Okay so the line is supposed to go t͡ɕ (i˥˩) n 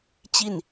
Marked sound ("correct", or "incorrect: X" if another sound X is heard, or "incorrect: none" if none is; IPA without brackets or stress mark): correct